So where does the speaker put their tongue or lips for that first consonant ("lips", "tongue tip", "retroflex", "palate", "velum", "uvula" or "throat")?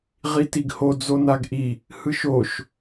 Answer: uvula